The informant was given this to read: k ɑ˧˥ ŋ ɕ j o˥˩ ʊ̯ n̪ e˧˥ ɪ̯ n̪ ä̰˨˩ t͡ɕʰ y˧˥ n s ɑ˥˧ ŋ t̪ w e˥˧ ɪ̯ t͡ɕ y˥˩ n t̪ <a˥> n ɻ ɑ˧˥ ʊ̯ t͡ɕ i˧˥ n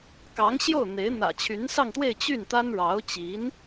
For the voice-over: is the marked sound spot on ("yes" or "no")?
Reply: yes